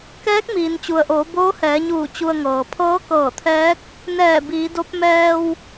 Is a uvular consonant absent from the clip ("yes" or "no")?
yes